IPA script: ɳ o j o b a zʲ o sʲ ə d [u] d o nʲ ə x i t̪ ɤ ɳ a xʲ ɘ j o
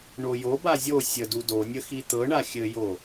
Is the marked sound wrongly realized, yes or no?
no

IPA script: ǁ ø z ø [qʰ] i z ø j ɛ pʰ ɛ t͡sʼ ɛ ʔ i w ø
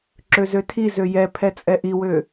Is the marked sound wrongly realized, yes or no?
yes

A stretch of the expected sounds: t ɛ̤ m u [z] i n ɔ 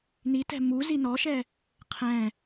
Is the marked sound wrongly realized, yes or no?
no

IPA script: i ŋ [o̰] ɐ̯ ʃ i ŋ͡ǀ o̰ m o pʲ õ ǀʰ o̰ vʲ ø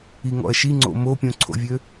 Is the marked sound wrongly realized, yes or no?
yes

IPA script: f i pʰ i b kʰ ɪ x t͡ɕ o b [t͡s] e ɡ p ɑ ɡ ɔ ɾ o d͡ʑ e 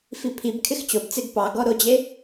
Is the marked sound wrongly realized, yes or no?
no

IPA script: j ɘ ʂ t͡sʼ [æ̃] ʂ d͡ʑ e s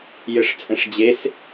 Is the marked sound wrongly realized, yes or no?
yes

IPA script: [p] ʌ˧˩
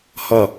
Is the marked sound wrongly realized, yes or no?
yes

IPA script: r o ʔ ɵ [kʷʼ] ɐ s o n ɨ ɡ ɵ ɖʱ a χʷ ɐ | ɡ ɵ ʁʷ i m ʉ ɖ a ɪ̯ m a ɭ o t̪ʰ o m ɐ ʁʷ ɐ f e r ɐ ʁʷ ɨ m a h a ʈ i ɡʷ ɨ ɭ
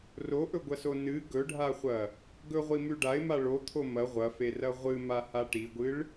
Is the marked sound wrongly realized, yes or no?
yes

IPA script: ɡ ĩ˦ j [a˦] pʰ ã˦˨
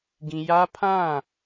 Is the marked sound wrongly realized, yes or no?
no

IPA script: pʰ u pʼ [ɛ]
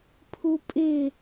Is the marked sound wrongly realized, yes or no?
yes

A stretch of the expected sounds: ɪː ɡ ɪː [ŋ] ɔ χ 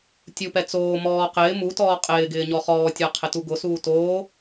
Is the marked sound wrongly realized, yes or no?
yes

